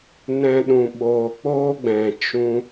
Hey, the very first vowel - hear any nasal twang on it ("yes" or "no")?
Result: yes